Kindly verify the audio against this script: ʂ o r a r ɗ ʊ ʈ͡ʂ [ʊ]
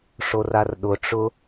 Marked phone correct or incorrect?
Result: correct